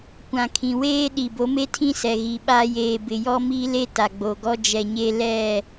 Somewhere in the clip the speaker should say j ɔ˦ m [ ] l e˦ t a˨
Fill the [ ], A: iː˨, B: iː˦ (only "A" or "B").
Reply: B